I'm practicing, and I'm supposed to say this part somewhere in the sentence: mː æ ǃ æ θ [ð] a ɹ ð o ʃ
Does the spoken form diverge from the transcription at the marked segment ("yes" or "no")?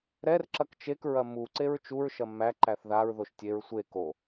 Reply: no